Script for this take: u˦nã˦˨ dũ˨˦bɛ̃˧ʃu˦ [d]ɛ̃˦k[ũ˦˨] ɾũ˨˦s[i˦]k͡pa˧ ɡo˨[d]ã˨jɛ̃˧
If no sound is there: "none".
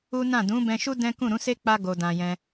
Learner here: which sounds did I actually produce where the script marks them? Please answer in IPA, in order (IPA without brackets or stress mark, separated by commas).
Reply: d, ũ˦˨, e˦, d